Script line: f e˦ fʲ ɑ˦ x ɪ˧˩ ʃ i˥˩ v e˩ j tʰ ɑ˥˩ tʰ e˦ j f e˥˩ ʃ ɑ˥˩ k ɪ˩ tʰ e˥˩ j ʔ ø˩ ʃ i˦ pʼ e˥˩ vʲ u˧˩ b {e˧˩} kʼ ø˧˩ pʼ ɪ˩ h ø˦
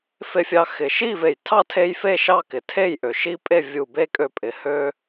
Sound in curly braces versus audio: incorrect: e˦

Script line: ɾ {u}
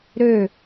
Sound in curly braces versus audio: incorrect: ø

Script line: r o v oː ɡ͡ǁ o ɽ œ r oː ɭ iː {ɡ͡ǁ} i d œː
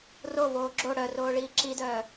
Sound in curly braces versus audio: incorrect: ǁ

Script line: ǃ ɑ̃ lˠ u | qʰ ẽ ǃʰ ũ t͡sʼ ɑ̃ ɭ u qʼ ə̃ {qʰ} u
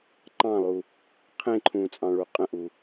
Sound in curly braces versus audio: incorrect: ʔ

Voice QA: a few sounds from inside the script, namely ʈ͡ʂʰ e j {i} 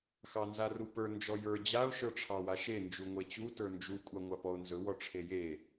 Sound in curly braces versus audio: incorrect: e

